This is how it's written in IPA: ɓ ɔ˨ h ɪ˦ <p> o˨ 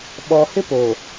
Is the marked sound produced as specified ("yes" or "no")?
yes